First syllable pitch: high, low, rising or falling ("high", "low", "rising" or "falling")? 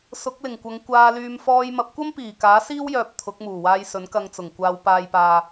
rising